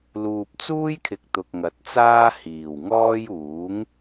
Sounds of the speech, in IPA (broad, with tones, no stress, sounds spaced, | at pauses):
l uː˨ p̚ t͡s uː˥ j kʰ ɪ˨ k̚ t̪ ʊ˨ k̚ ŋ ɐ˨˥ t̚ t͡s aː˥ h iː˨˩ w ŋ ɔː˥ j uː˨˥ ŋ